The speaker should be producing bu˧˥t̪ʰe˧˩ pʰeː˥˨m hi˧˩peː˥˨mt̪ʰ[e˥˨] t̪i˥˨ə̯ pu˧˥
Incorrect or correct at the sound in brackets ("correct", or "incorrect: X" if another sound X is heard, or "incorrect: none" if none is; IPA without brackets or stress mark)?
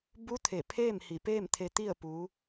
incorrect: e˧